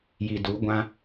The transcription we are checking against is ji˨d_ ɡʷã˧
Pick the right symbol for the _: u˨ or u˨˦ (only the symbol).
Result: u˨˦